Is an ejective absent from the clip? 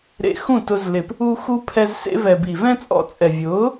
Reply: no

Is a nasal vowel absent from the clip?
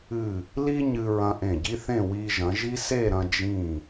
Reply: no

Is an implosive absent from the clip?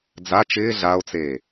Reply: yes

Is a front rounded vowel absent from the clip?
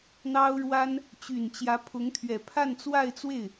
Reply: no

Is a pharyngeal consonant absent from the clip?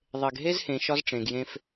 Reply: yes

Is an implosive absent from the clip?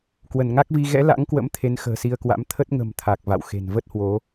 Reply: yes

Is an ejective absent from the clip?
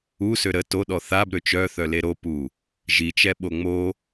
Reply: yes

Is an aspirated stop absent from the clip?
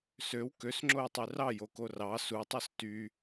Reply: yes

